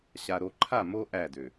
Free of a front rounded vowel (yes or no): no